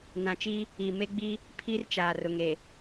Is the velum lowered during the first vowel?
yes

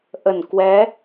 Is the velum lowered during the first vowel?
no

